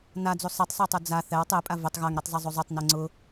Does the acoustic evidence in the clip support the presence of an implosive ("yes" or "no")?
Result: no